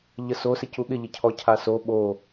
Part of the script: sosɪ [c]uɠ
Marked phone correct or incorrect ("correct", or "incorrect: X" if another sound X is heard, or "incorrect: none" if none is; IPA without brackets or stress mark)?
correct